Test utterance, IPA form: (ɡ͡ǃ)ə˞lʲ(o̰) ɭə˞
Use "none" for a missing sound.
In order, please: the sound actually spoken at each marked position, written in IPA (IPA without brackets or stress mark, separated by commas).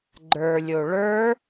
ɡ͡ǃ, o